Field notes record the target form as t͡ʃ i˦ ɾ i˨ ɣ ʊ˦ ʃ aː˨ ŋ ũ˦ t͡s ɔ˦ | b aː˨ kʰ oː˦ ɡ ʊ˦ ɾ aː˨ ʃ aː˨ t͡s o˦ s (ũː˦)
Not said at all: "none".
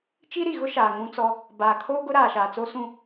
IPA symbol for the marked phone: ũ˦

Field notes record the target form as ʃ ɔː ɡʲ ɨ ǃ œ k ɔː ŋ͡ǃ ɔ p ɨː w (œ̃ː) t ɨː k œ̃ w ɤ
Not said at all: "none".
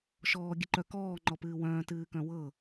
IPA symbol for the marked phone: œ̃ː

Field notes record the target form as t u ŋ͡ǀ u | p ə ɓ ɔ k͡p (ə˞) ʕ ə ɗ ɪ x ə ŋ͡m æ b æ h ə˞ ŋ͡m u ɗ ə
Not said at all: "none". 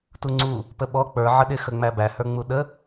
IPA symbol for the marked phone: ə˞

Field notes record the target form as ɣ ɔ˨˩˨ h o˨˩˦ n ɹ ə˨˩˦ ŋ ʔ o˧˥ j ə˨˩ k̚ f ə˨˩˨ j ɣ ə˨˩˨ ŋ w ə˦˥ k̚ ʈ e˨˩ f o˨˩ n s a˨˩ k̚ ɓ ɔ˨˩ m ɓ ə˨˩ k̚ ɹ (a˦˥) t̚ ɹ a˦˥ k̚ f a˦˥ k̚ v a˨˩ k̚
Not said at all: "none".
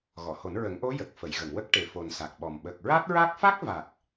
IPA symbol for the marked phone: a˦˥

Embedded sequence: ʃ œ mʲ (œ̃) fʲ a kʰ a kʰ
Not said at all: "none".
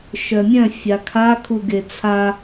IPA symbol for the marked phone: œ̃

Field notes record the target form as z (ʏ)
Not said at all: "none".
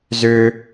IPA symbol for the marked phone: ʏ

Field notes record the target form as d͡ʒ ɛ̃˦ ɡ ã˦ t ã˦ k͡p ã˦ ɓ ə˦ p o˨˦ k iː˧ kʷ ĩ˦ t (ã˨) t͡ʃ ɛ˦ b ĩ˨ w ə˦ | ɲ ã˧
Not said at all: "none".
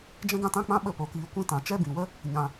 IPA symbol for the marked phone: ã˨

